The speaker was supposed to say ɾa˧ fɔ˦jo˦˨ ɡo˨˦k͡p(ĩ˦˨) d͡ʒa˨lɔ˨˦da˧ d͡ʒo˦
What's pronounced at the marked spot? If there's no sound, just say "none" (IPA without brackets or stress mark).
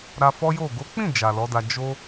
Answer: ĩ˦˨